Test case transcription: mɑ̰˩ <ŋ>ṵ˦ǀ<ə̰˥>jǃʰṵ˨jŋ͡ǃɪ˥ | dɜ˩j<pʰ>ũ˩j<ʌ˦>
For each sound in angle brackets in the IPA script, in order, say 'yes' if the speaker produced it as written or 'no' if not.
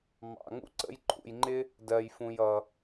yes, no, no, no

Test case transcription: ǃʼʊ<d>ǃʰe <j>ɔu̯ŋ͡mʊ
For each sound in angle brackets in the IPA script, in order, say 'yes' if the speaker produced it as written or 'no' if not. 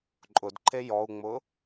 yes, yes

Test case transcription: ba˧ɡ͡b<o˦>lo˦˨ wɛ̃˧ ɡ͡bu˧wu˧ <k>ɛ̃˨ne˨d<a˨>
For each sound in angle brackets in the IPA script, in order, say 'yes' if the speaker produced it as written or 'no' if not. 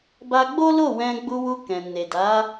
yes, yes, no

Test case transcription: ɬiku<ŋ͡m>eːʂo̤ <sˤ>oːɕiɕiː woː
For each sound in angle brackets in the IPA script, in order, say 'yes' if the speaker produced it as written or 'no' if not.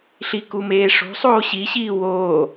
no, yes

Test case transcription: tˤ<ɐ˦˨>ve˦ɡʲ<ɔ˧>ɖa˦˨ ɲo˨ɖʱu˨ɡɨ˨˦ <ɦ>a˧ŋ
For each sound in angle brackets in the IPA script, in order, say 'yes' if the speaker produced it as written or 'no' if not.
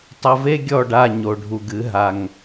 no, no, yes

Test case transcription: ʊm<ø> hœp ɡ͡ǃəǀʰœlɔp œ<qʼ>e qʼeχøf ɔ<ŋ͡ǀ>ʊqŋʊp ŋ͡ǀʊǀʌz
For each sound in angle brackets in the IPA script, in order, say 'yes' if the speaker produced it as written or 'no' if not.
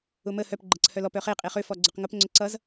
no, no, no

